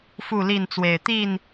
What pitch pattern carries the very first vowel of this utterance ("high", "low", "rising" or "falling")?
falling